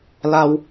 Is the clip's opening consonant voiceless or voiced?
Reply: voiced